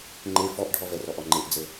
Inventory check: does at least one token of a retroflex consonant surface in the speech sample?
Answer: yes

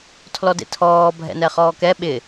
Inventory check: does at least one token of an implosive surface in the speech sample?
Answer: yes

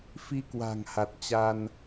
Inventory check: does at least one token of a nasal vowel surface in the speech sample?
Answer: no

